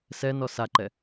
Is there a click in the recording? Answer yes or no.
yes